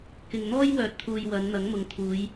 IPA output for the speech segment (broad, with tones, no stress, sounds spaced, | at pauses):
k ɪ˨ ŋ n̪ ɔː˥ j w œː˨˥ t̚ t̪ʰ uː˨ j w ɐ˨˧ n n̪ ɐ˨˥ ŋ m ʊ˨ ŋ t̪ʰ uː˨˧ j